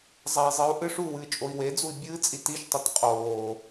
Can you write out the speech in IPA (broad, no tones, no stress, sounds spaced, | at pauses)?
zˤ ɐ i̯ zˤ ɨ u̯ ʔ ɨ ʂ u w ɨː t͡ʃʼ o i̯ w e d͡z u i̯ bʲ ɨː t͡sʼ i t i ʃ tˤ ɐ t qʼ oː